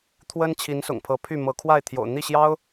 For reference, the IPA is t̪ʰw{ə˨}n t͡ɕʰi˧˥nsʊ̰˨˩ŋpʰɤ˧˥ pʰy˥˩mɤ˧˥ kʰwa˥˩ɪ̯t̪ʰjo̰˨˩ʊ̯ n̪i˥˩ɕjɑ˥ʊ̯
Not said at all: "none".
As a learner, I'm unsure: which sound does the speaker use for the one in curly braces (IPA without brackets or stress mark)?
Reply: ə˥